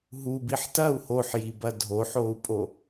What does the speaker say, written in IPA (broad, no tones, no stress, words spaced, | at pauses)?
ɦubiħ tɐu̯ hoħjibɐ dʱoħou̯pʼo